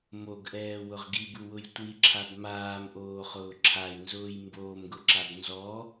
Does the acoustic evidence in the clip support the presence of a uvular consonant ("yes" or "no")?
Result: yes